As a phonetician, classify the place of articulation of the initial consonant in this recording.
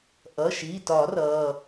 glottal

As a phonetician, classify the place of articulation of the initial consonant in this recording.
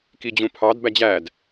velar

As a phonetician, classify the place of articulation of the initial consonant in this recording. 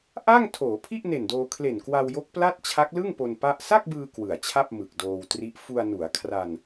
glottal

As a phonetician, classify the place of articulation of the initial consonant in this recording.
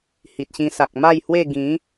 glottal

